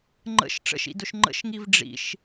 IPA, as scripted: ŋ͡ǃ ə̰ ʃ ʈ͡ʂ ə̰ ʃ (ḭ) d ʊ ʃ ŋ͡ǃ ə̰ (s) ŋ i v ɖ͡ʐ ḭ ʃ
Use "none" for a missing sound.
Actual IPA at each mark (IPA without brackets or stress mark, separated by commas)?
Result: ḭ, ʃ